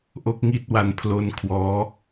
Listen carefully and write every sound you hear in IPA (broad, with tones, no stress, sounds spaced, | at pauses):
ʔ o˥˩ k̚ ŋ i˥˩ t̚ w a˧ n pʰ l o˧ n kʰ w ɔː˦˥